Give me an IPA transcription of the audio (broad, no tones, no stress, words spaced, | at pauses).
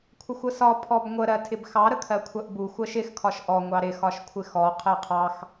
kʷʰəxʷəsɒ pʰɔbŋʷə ɾɜtʰɪbxɑ ɾəkʰɜkʷʰɜʔbu xʷɜʃɪx kʰɒʃʔɔ ŋʷɑɾɪ xɒʃkʷʰɪxɔ qʰɜqʰɑx